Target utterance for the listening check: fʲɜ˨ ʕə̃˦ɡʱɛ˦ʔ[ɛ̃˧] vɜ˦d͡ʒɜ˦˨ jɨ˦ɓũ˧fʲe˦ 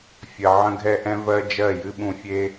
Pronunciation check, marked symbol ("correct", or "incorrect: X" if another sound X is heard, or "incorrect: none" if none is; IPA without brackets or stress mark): incorrect: ɛ̃˦